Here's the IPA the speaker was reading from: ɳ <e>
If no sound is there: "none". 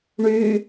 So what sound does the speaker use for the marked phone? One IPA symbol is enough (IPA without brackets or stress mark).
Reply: y